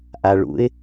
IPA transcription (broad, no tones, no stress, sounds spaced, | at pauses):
ʔ a ɭ ṵ ɪ̯